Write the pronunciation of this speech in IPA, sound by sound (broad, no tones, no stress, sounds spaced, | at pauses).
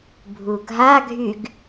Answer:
bʱ u ɡʱ a ɡʱ y ɡ